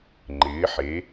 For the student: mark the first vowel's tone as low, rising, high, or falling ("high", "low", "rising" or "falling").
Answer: rising